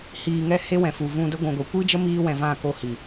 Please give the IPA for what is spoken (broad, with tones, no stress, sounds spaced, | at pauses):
h iː˨ ŋ ɛ˧ h e˦ w ɛ̃˨ f u˨ v ũ˧ d ə˦ ɡʷ ũ˨ ɡʷ i˨ kʷ iː˦ d͡ʒ ə˦ m iː˧ w ɛ̃˨ v ã˦˨ k o˧ h i˨